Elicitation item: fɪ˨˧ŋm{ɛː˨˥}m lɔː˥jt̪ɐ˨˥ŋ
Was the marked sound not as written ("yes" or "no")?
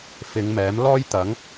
no